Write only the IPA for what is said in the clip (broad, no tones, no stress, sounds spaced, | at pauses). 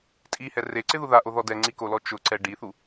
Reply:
tʼ i h ɛ r e ǀ ɪ ð u ð a ʔ o ð ɔ d ɛ ŋ͡ǀ i k o l ɔ t͡ʃ ʊ ǀ ɛ ɖ i θ u